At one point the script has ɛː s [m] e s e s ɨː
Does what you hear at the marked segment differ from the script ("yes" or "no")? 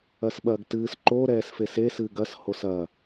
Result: yes